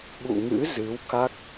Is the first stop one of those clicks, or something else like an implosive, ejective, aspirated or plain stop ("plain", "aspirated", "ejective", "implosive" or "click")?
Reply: implosive